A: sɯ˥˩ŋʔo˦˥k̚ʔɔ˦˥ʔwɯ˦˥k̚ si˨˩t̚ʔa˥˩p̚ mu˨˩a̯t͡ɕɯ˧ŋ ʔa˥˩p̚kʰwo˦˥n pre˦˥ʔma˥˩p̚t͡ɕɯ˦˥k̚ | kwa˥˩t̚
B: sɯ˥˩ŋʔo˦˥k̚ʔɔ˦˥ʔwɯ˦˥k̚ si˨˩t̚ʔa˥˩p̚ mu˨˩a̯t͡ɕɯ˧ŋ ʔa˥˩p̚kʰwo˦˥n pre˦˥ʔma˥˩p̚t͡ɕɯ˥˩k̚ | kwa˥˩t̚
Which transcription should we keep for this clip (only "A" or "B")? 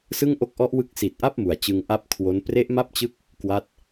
A